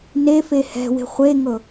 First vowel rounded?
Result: no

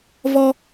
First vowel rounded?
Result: yes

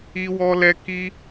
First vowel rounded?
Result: no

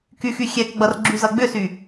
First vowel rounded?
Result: yes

